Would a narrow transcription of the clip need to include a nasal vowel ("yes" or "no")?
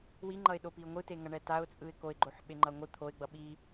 no